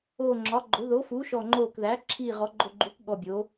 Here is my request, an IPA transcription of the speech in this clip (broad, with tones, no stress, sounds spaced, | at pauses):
oː˨˩ ŋ͡ǁ ɒ˩˧ ɡ͡ǃ o˩˧ ð o˩˧ f uː˩˧ ʃ ɔ˨˩ ŋ͡ǃ oː˨˩ k ð æ˩˧ ǁʰ iː˨˩ ʁ ɔ˩˧ ɡ͡ǃ o˨˩ ɡ͡ǃ uː˩˧ k ɠ ɔ˨˩ bʲ oː˩˧